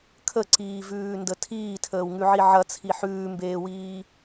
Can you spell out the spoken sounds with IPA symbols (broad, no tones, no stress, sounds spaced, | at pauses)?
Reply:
kʰ ə ǀ iː v ʉː n d ə tʰ iː tʰ əː w ŋ ʉ ʕ i ʕ ɐ t͡sʰ i ħ ʉː m b eː w iː